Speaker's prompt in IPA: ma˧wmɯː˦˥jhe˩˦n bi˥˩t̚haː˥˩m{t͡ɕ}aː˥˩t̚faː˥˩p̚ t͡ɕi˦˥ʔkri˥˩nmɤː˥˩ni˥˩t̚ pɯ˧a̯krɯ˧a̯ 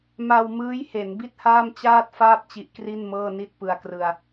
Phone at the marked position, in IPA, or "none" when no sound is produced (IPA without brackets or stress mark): t͡ɕ